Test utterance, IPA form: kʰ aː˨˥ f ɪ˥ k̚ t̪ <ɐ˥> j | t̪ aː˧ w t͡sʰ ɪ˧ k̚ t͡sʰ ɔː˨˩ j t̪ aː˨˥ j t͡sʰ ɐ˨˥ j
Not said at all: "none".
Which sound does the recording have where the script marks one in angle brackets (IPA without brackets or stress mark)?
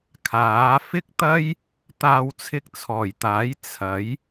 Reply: ɐ˥